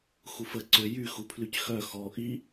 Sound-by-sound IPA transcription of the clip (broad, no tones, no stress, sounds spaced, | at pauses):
x u f ə ǀ ø j y x u pʰ l y c x œ x ɔ ʔ i